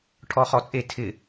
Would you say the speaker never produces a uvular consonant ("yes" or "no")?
no